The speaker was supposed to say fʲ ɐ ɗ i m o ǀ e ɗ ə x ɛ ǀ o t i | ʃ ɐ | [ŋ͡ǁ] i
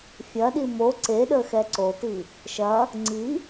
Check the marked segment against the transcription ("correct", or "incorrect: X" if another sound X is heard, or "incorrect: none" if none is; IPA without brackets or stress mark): incorrect: ŋ͡ǀ